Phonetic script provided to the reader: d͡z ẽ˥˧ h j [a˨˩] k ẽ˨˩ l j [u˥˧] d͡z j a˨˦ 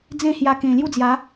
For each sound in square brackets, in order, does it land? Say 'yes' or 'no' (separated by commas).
no, yes